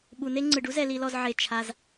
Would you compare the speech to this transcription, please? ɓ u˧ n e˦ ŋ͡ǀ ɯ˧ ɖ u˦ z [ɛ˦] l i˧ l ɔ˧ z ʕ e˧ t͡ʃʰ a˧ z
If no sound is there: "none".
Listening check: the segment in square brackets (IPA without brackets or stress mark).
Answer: ɛ˧